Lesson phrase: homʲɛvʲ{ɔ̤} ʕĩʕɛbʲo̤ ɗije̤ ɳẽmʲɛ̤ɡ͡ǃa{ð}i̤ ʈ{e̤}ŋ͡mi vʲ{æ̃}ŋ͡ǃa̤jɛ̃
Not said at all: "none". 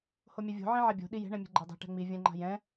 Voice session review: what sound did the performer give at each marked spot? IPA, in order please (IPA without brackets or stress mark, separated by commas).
o̤, dˤ, ɛ̤, ɛ̃